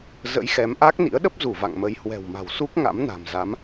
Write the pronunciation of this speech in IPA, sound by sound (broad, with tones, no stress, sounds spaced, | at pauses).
z ə̰˧˥ j x ɛ˨˦ m ʔ a˦˥ k̚ n ḭ˧˥ ə̯ ɗ ə˦˥ p̚ z u˧˩ v a̰˧˨ ŋ m ə˨˦ j h w ɛ̤˨˩ w m a̤˨˩ w s u˦˥ k̚ ŋ a̰˧˥ m n a̤˨˩ m z a˨˦ m